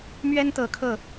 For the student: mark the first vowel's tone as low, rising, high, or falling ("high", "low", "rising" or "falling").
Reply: high